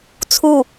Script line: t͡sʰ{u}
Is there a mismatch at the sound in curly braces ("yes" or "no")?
no